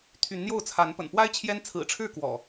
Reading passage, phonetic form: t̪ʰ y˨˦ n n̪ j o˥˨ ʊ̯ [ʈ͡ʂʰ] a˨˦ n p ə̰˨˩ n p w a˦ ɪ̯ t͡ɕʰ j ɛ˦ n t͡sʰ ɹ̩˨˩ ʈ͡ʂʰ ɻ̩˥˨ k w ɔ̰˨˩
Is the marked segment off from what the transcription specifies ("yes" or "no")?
yes